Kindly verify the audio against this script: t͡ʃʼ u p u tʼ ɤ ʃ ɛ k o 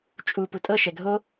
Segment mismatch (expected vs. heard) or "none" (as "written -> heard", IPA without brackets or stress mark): k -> ɡʱ